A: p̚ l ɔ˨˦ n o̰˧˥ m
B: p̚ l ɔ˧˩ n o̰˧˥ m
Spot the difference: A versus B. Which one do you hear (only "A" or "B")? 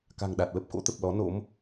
A